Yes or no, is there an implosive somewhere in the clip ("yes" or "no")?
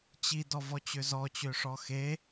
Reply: no